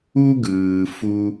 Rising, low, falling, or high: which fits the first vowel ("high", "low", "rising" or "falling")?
high